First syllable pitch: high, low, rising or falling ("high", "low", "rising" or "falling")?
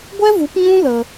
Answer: high